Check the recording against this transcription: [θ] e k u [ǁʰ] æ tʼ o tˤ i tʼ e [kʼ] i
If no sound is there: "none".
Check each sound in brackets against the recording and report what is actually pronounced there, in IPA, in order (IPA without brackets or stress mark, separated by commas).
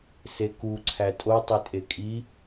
s, ǀʰ, kʼ